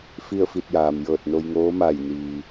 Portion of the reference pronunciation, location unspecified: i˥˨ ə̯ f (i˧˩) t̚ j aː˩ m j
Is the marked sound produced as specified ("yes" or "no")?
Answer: no